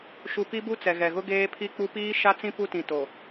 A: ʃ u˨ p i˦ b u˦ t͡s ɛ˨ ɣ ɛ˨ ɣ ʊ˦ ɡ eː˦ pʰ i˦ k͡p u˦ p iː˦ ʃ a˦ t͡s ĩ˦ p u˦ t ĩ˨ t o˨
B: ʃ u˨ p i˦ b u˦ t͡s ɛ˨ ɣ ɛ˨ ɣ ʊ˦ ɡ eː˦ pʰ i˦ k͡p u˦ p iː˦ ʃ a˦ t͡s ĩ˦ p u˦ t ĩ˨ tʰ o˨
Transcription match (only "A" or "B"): A